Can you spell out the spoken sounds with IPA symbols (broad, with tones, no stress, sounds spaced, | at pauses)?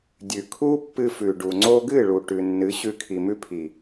dʲ ʉ˨ kʰ u˦ pː ɨ˧ f ʉ˨ ɖ u˨ ŋ͡ǀ o˧ ɡ ɨ˦˨ ɭ u˨ ʈ ʉ˨ nː ɨ˨˦ ɕ ʉ˧ kʰ i˨ m ʉ˦ pʰ i˨